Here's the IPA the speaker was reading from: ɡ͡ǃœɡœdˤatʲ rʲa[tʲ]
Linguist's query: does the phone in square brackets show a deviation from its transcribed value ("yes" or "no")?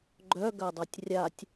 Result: no